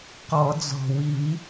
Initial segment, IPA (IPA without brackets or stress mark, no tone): q